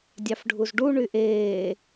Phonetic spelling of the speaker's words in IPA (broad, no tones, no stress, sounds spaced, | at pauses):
dʲ ɑ f ɖʱ u z ɖ u ɳ y ʔ eː